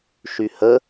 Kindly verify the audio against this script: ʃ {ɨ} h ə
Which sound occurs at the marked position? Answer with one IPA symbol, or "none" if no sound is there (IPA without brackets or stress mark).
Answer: y